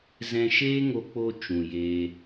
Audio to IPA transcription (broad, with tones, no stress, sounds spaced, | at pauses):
z ɛ̃˧ ʃ eː˦ ŋ o˧ k͡p o˧ t͡ʃ ũ˨ j eː˧